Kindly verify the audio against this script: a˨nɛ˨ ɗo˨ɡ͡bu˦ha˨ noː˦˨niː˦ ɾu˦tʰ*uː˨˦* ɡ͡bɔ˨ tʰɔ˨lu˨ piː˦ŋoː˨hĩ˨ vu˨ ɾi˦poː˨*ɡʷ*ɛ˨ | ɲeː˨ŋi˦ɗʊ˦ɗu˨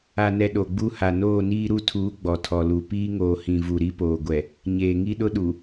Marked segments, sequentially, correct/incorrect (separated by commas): correct, correct